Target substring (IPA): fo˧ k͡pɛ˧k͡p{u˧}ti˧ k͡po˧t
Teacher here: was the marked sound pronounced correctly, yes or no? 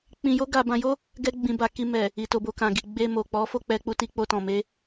yes